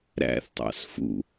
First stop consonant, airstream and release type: plain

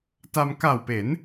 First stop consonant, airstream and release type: plain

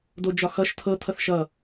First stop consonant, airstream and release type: plain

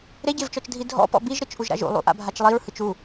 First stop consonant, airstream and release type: plain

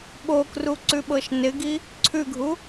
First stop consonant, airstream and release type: implosive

